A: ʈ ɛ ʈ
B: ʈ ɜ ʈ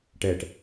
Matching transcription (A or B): A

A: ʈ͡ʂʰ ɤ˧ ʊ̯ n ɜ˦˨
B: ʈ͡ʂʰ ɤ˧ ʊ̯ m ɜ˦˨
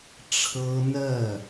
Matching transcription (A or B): A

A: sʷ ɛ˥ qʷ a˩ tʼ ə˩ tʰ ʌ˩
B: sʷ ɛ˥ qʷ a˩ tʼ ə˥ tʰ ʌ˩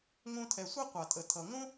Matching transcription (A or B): A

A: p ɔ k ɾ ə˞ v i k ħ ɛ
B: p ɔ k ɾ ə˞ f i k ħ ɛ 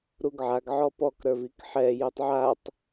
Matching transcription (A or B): A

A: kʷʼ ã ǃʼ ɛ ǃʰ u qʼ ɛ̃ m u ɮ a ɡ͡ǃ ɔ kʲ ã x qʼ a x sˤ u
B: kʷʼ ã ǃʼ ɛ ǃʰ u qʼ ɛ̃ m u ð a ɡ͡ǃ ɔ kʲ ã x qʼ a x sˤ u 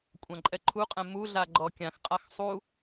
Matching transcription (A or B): A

